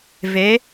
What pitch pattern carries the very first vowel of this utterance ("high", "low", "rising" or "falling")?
rising